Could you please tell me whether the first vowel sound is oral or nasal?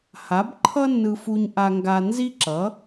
oral